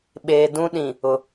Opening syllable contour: low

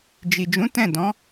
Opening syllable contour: low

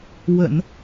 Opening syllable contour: low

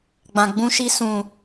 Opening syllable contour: low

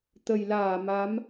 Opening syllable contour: low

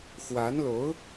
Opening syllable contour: rising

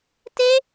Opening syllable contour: high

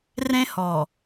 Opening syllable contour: high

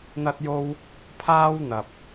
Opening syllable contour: high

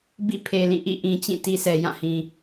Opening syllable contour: falling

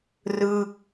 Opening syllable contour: falling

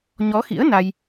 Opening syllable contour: rising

